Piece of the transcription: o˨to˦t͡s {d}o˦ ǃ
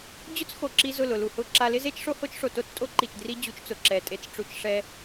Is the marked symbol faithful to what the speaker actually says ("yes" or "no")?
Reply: no